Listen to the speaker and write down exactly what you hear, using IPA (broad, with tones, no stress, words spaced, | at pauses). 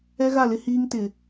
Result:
ɛ˦ɣa˦˨lɪ˦ hiː˦ŋtɪ˨